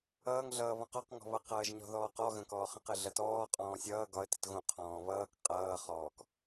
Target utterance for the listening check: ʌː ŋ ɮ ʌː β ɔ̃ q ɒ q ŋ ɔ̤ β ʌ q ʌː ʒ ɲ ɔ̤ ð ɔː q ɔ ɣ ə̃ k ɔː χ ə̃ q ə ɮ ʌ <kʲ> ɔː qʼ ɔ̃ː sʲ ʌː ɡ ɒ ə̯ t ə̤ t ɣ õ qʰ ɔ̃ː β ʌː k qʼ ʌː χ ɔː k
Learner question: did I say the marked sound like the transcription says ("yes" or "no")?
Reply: no